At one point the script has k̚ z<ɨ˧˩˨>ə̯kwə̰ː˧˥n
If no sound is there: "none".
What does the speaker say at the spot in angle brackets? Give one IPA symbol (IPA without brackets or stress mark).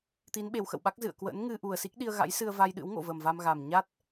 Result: ɨ̰˧˨